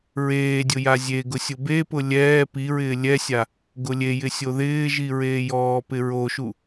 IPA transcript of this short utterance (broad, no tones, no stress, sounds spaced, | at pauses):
ɹ eː dʲ ʊ j a zʲ e ɡ ʊ sʲ ʊ b e p ʊ lʲ ɛː p i ɹ ɪː lʲ ɛ sʲ a | ɡ ʊ lʲ e j ɪ sʲ o ð ɪː ʒ i ɹ eː j ɔː p ɪ ɹ o ʃ u